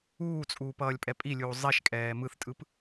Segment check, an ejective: present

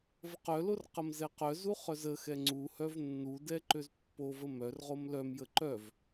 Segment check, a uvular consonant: present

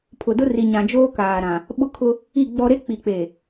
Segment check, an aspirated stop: present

